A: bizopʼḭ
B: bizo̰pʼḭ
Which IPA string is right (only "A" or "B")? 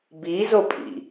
A